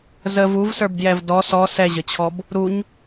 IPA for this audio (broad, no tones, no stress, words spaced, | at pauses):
zəv uvsə˞bdjɛv dɔ sɔ sɛʑət͡ɕʰɔb | ɾuɲ